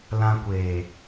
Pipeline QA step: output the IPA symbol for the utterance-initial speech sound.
l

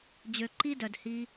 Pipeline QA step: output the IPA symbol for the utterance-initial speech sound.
d͡ʑ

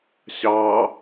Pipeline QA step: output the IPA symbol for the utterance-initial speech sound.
ɕ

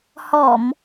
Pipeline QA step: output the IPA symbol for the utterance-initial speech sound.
h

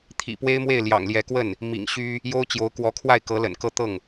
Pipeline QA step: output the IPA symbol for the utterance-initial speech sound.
t̪ʰ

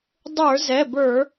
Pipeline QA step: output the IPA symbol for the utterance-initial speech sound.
dˤ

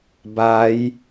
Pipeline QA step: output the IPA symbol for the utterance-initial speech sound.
b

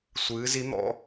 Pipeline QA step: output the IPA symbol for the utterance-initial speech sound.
sʷ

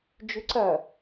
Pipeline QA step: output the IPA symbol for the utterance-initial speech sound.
d͡ʒ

